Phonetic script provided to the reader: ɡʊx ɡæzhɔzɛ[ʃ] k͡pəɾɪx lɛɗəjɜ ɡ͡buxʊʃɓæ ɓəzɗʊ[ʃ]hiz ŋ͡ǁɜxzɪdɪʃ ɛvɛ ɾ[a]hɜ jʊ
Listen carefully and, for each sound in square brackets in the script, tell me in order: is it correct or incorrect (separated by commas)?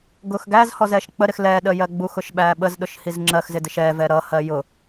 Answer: correct, correct, incorrect